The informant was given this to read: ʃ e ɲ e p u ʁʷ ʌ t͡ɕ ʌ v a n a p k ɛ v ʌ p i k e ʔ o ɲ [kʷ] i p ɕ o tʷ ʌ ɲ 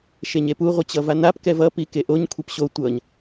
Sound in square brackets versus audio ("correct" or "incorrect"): incorrect